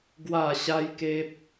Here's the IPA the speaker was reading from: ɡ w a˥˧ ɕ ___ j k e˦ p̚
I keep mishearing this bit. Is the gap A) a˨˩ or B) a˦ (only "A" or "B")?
B